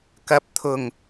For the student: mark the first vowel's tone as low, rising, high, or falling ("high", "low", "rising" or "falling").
rising